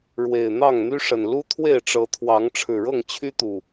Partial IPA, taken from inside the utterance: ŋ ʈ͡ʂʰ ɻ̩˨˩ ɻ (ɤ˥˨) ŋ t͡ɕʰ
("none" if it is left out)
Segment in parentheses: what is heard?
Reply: ɤ˥˨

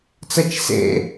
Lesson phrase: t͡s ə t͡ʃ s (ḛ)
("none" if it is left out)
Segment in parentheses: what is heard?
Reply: ḛ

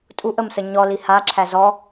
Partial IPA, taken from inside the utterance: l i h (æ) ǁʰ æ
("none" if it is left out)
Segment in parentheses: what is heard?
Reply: a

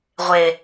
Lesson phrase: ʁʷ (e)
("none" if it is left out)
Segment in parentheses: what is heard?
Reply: e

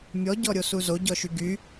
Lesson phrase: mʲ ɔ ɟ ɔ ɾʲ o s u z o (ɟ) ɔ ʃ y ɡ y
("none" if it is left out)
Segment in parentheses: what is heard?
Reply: ɟ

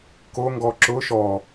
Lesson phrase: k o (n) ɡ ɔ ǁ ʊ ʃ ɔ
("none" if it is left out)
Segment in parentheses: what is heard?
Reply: ŋ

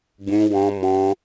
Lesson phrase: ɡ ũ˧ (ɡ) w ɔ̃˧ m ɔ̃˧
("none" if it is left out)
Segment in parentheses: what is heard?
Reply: none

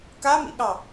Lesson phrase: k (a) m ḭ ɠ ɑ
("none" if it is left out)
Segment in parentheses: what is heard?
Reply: a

